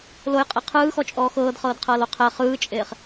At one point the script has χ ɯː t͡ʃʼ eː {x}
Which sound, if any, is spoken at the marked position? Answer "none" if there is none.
χ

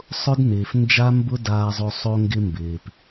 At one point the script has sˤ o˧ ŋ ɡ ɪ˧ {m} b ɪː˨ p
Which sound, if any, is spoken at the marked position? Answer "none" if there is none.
m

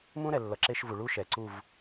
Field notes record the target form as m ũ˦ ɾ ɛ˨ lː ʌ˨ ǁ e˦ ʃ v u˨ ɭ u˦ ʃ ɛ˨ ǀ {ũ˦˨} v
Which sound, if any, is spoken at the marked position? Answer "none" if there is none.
u˦˨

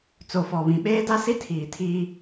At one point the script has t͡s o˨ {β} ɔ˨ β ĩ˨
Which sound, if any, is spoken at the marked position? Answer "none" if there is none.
f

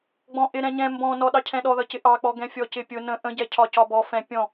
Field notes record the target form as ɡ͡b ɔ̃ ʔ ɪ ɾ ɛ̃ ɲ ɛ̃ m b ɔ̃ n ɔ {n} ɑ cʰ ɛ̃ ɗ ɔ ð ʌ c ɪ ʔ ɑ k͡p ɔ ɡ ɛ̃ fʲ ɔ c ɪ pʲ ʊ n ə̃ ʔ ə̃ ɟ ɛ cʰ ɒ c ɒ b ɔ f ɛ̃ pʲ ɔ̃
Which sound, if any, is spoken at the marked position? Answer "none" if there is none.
ɗ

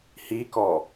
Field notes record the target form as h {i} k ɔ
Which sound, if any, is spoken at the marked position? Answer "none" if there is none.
i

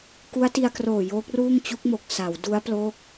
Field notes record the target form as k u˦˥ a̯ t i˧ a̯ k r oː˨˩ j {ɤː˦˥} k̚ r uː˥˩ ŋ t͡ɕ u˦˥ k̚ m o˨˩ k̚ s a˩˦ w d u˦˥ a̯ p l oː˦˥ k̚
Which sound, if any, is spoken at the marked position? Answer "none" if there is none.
oː˦˥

